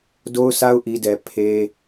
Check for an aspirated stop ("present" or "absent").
present